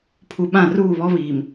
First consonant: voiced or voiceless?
voiceless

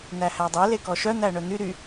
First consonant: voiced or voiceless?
voiced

